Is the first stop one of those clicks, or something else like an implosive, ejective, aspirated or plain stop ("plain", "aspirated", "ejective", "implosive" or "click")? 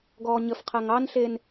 plain